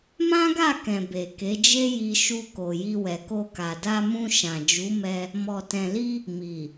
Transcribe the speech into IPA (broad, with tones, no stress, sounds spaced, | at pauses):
m ã˦ ɡ a˦˨ k ɛ̃˨ b e˨ k e˨˦ d͡ʒ e˦ j i˧ ʃ u˧ k o˨ j i˧ w ɛ˨ k o˧ k a˨ d a˧ m ũ˧ ʃ ã˨ d͡ʒ u˨˦ m ɛ˧ | m ɔ˨ t ɛ̃˨ l i˧ | m i˨